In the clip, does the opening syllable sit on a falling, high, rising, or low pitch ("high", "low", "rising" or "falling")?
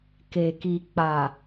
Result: low